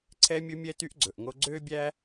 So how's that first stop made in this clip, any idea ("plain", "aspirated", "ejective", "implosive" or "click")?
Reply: click